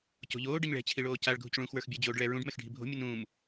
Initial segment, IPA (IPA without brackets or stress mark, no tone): c